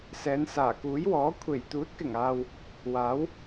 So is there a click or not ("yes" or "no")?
no